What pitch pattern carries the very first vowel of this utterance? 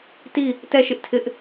falling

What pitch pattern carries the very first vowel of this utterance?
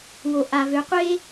low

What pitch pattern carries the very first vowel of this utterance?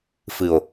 low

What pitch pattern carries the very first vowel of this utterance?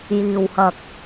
low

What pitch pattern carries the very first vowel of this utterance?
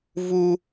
high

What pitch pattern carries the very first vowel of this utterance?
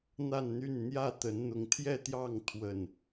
falling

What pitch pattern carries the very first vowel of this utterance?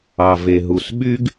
low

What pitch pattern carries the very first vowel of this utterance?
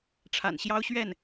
low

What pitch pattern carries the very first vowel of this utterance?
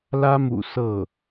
high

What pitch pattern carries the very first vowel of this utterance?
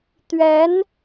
rising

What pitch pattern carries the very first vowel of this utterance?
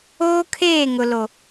high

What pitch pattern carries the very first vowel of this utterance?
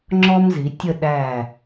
high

